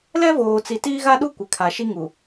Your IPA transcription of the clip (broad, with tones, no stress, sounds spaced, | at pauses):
l ɛ˦ v oː˨ t͡s i˨ t iː˦ ɣ a˦ ɗ u˦ kʷ ɪ˨ kʰ a˨ ʃ i˦ ŋ u˨